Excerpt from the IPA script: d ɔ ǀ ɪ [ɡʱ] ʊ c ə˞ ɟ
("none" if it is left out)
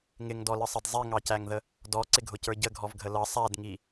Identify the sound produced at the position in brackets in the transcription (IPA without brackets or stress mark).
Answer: ɡʱ